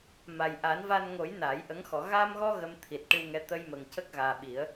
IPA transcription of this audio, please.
ma˨˩jʔa˨˩˦nva˧nŋo˨˩˦j na˨˩˦jʔə˧˥ŋ xɔ˨˩˨ ɣa˧mɣɔ˧ ɣə˧mt̪ʰi˨˩t̚ ʈɨ˧wŋɛ˧˥ t̪ə˧jmə˨˩ŋ cə˦˥k̚ɣaː˨˩ɓi˨˩˦ə̯

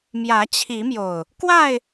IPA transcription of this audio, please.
mjä˨˦t͡ɕʰi˨˦mjo˨˩ʊ̯ | kwa˥˨ɪ̯

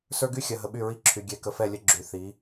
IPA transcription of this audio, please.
sə˞˦ɡy˦xʲɐ˨ ɦə˨ɓy˦˨ɹi˦˨ ǁʰy˨ ɡʲɛ˨ kə˨fɛ˦˨lʲə˦ ɡ͡ǁy˨θi˨˦

